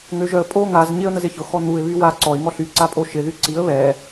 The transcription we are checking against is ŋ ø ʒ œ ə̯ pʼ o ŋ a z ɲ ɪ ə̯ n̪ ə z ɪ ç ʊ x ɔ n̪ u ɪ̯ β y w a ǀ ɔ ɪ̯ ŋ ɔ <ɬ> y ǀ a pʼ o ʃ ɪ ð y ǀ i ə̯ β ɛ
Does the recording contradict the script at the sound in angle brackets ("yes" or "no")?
no